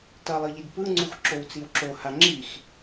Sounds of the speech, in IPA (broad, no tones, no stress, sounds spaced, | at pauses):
t ʌ lˠ ɯ ʎ i d p ɯ ŋ͡ǀ u x ǁ o w t͡s i w ǁ o h a ŋ͡ǁ i x